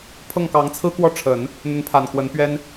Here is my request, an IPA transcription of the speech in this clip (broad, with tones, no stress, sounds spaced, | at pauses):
pʰ ɤ˥˩ ŋ k ɑ˧˥ ŋ t͡sʰ ɹ̩˥ k w ɔ˥˩ ʈ͡ʂʰ ə˨˩˦ n | n̪ ə˧˥ n pʰ a˨˩ n k w ə˧˥ n p ɥ ɛ˥ n